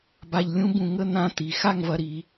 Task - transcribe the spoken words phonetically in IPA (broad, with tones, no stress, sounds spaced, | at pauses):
b a˧ ʎ lʲ ũ˥ b ũ˧ ŋ ə˥˧ n̪ ã˥˧ t̪ i˩˧ x a˥˧ ŋ v ɐ˧ ɾ i˩˧